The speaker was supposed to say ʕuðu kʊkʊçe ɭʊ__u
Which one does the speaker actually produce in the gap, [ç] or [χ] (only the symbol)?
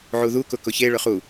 χ